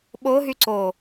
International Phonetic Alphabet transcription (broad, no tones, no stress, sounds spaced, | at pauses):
ɓ o ɦ y ǀ o